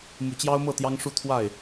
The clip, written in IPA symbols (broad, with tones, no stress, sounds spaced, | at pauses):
m u˨˦ t͡ɕ j ɑ˦ ʊ̯ m ɤ˥˨ t̪ j ɑ˦ ŋ ʂ u˥˨ t̪ʰ w a˥˨ ɪ̯